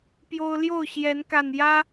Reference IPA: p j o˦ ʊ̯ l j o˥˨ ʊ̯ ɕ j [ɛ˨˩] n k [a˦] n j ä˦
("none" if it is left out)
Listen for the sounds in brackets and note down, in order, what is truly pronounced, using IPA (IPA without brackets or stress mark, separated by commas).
ɛ˨˦, a˨˩